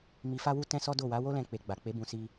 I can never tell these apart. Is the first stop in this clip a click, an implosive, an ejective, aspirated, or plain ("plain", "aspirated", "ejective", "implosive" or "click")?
plain